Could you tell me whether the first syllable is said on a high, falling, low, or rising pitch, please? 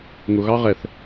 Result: low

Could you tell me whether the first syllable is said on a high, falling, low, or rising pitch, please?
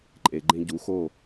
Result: low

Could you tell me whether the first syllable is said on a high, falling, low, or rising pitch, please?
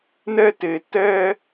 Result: high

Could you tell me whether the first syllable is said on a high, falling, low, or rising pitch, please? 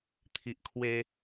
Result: low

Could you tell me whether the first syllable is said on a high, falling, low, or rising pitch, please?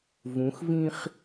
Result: rising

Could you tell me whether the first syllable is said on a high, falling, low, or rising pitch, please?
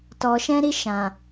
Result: low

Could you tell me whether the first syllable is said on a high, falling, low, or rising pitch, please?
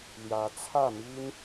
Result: rising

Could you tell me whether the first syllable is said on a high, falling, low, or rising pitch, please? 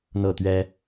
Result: falling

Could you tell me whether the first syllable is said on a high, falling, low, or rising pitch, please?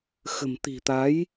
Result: low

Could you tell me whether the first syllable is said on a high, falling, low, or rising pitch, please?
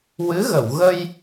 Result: rising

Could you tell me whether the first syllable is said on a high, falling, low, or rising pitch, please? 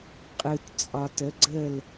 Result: low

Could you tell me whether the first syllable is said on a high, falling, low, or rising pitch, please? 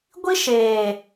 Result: high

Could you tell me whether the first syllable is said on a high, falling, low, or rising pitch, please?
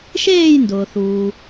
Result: falling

